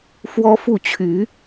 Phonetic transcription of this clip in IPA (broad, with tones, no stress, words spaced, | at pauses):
fwɔ˦fu˥˨ t͡ɕʰy˨˦